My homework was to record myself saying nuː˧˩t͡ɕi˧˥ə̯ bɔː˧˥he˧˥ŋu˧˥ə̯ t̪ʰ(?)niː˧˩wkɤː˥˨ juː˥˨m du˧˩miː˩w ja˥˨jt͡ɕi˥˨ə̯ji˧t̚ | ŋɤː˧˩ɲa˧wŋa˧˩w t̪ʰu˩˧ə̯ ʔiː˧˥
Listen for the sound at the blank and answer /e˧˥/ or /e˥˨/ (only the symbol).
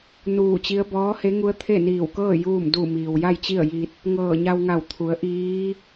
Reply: e˥˨